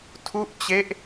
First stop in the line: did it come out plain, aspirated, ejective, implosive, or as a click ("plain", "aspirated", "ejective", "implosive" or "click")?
aspirated